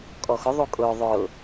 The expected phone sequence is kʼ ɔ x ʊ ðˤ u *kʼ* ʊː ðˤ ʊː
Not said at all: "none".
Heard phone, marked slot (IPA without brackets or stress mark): kʼ